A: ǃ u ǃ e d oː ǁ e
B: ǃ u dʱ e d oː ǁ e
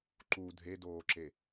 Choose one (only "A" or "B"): B